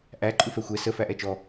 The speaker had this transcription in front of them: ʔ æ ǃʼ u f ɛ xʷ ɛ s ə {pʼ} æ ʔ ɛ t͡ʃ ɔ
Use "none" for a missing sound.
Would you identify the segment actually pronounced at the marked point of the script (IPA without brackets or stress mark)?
f